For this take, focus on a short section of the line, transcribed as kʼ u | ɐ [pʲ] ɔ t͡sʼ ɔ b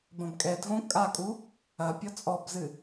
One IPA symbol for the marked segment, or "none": pʲ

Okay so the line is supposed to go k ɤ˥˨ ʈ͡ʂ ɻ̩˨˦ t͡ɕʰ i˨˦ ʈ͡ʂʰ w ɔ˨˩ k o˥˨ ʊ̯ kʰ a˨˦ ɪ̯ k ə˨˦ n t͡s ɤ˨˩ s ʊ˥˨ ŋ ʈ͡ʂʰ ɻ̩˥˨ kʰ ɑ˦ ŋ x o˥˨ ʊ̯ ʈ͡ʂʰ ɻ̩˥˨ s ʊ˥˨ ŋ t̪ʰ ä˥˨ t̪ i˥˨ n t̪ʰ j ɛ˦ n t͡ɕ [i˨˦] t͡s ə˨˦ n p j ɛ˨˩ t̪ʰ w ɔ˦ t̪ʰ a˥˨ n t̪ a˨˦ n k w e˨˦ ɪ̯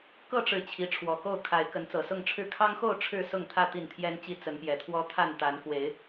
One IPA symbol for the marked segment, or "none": i˦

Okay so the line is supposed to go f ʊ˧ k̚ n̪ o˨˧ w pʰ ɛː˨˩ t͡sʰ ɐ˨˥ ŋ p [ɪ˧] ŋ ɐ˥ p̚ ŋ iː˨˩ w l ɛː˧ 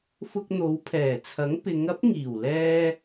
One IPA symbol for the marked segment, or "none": ɪ˨˧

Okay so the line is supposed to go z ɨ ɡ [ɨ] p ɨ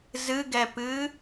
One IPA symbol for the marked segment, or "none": ɛ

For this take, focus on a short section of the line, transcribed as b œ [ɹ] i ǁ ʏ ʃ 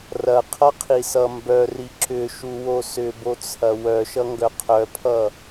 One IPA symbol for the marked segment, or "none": r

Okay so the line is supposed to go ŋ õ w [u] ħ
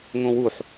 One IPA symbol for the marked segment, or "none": u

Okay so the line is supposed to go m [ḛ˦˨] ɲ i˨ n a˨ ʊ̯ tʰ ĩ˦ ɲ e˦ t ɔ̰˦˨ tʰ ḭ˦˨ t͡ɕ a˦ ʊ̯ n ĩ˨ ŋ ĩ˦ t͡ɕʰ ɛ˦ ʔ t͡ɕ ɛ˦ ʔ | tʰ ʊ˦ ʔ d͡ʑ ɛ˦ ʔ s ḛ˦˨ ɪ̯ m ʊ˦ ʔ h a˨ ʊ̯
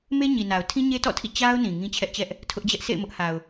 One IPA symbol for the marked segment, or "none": e˦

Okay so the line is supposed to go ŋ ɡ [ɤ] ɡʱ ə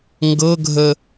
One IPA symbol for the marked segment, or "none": ɤ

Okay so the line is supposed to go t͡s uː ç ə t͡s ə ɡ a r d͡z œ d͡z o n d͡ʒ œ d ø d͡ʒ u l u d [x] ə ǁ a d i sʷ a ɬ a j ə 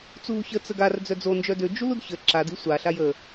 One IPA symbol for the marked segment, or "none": ç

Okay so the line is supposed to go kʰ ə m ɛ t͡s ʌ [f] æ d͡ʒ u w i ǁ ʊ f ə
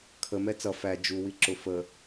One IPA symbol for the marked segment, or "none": f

